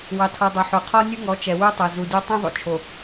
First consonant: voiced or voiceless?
voiced